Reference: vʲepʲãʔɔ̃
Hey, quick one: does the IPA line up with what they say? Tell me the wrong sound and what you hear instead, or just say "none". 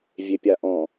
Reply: ã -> a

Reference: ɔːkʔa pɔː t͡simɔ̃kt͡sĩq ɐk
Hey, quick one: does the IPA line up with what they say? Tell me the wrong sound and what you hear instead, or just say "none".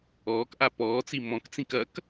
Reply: q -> k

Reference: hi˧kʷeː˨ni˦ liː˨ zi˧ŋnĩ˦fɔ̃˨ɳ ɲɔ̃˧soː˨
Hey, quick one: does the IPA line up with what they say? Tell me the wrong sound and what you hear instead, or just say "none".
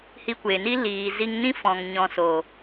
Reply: ɳ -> ŋ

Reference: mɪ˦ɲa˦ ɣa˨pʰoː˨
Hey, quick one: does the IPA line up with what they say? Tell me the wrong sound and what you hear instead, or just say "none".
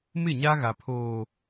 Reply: ɪ˦ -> ɪ˦˨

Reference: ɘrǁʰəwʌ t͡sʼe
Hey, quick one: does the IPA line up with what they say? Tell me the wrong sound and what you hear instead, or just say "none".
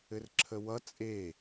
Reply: none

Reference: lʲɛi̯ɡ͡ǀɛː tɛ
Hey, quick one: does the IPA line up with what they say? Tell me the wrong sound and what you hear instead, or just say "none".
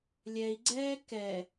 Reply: t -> k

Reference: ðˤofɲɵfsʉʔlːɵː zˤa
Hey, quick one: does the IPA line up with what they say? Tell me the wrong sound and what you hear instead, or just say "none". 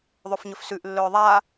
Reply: zˤ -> ðˤ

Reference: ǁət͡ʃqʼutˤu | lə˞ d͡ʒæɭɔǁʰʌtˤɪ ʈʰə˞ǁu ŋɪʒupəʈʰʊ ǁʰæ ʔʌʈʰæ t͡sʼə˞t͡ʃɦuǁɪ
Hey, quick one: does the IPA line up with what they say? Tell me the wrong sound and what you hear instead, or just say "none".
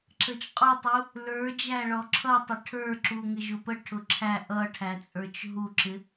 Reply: none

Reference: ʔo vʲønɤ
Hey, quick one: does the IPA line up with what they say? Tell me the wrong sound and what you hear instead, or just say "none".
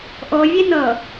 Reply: ø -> e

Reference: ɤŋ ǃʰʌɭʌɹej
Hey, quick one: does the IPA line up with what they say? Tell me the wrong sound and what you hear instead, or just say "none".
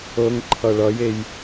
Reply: ɹ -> j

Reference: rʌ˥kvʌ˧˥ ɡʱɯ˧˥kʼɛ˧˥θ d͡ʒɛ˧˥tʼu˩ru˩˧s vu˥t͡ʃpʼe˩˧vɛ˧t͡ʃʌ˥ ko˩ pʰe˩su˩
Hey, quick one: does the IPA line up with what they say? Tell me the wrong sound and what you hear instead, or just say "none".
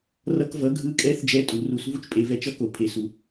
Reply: none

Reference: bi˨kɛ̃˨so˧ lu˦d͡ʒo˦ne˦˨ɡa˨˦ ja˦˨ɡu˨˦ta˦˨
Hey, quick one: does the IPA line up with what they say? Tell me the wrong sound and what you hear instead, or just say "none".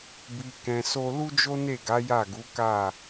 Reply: t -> k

